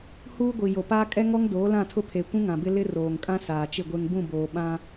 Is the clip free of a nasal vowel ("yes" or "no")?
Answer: no